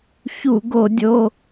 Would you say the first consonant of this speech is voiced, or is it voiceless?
voiceless